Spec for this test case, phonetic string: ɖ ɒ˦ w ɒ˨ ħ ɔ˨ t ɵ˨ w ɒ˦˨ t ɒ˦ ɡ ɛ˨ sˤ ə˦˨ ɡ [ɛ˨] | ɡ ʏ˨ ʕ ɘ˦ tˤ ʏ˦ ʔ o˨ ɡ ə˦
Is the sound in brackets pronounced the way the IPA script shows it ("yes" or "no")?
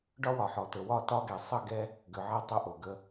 no